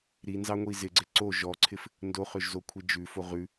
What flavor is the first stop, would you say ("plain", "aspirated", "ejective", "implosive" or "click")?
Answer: click